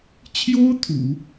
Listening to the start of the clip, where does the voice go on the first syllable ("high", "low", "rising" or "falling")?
high